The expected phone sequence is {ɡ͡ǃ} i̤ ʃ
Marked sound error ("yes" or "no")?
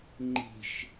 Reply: yes